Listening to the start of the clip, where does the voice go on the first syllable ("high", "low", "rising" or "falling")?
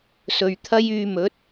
low